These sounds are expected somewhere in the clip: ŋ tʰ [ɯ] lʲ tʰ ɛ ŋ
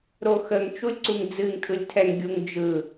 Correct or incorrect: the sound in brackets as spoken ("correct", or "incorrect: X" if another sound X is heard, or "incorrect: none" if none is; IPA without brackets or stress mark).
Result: correct